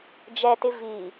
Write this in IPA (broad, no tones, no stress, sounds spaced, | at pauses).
d͡ʒ ɛ t ɪ v i